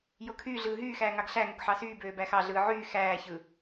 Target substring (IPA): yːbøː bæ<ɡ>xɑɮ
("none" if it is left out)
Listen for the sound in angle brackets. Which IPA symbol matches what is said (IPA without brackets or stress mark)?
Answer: none